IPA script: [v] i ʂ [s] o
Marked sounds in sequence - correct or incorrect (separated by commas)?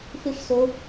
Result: incorrect, correct